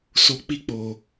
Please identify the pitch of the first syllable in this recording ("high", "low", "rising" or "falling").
low